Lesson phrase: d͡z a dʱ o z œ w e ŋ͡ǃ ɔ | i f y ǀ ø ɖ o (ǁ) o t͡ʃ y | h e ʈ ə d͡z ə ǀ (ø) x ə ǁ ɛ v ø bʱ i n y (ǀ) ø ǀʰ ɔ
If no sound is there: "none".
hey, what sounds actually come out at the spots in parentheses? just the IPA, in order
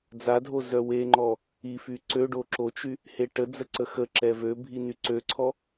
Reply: ǁ, ə, ǀ

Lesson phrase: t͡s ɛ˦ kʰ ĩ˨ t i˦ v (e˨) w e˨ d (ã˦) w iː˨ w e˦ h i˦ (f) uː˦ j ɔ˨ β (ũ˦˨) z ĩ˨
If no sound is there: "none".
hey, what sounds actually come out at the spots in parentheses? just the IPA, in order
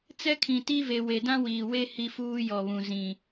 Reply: e˨, ã˦, f, ũ˨

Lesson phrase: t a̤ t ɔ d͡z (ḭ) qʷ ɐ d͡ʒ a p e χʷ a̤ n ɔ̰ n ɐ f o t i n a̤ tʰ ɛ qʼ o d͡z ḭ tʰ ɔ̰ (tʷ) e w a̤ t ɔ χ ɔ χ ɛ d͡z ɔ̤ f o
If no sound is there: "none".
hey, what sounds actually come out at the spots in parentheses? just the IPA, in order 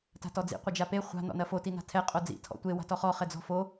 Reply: ḭ, tʷ

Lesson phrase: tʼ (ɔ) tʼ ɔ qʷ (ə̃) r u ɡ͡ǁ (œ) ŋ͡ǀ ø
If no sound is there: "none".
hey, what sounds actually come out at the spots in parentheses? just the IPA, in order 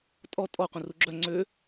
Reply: ɔ, ə̃, œ

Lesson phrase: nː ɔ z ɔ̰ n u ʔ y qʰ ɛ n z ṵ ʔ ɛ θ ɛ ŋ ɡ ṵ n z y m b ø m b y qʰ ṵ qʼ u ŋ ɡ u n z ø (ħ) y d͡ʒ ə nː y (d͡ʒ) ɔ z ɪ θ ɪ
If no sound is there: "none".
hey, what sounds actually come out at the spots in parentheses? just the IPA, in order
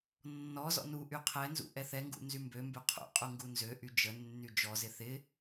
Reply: ʔ, d͡ʒ

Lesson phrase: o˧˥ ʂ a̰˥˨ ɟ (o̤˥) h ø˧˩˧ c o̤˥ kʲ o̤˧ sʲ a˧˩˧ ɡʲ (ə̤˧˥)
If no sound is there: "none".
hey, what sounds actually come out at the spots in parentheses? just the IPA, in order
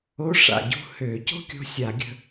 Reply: ṳ˥, ə̤˧

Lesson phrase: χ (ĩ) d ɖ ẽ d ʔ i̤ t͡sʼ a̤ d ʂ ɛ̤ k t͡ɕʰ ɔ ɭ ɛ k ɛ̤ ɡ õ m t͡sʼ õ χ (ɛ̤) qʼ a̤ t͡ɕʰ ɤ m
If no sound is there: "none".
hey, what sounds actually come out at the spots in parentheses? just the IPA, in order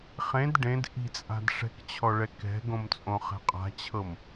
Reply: ẽ, ɛ̤

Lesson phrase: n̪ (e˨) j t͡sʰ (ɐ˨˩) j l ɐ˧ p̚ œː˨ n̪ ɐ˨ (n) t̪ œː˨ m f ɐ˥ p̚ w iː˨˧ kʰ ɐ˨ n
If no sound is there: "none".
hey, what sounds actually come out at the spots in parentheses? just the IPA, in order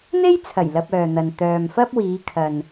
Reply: e˥, ɐ˨˩, n

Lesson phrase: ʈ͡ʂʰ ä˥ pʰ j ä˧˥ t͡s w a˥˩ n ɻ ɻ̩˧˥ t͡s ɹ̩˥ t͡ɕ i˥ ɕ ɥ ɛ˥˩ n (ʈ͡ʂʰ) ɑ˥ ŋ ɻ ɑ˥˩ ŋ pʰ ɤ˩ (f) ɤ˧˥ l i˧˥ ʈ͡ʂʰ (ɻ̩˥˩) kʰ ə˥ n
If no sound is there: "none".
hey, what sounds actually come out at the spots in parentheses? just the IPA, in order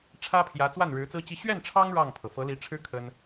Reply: ʈ͡ʂʰ, f, ɻ̩˥

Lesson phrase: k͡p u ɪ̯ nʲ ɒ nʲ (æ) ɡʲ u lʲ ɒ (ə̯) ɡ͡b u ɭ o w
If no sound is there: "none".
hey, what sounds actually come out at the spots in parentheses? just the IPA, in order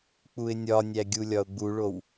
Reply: æ, ʊ̯

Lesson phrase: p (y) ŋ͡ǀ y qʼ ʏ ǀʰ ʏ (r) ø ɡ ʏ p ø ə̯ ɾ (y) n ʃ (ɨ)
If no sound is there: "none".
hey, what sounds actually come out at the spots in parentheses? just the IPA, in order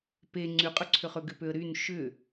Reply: e, χ, y, ʏ

